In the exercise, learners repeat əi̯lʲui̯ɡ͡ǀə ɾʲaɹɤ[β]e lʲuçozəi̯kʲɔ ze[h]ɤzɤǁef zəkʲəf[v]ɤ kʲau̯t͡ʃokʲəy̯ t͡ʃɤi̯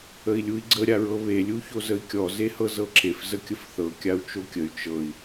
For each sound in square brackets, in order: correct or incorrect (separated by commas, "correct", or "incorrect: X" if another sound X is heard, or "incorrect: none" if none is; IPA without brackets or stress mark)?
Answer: correct, correct, incorrect: θ